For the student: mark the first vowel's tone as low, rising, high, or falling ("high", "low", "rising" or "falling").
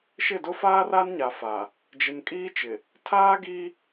falling